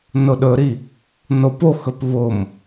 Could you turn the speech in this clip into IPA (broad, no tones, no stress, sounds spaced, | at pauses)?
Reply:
n ʊ ɗ ɵ ɾ i | n o p o x ɵ p β ʊ m